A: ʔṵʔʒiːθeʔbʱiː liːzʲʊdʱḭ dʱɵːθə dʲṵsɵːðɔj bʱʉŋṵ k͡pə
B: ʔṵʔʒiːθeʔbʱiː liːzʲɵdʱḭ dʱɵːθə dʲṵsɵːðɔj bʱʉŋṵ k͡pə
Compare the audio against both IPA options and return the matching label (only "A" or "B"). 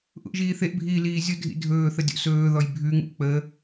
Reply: A